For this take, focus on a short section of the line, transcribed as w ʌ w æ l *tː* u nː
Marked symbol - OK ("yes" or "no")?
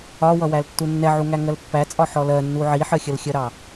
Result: yes